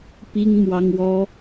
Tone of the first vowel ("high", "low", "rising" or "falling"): high